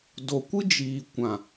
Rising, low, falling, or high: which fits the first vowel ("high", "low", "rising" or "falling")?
low